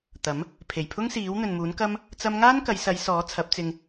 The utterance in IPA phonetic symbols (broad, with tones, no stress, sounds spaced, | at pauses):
t̪ ɐ˨˥ m | pʰ e˨˩ j pʰ ʊ˥ ŋ s iː˨˥ w n̪ ɵ˨ n m uː˨˥ n k ɐ˥ m | t͡s ɐ˥ m ŋ aː˥ n k ɐ˨˧ j s ɐ˨˧ j s ɔː˨˥ t͡sʰ ɐ˨˥ p̚ t͡s ɪ˧ ŋ